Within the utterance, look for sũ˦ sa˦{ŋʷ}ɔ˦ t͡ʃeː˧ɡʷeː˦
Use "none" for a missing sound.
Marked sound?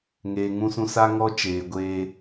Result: ŋ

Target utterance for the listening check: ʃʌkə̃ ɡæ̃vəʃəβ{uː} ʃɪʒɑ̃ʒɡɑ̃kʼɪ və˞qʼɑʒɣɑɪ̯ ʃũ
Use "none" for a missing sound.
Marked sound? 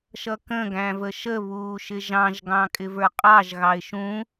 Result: uː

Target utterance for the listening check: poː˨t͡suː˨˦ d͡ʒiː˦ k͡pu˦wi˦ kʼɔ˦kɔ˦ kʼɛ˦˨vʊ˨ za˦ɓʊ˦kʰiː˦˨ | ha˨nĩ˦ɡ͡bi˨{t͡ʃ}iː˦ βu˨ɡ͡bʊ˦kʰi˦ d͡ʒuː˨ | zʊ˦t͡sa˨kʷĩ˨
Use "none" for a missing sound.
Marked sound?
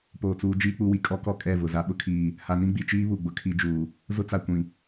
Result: t͡ʃ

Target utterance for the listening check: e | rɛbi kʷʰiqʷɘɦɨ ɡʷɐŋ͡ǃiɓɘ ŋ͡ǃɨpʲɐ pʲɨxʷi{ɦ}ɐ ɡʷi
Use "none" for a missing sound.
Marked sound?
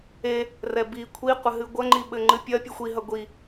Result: ɦ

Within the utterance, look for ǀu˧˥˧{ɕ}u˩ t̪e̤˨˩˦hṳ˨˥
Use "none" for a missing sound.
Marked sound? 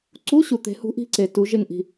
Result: ɕ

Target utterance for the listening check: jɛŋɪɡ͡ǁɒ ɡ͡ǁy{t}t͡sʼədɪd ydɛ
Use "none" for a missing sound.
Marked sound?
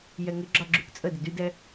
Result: k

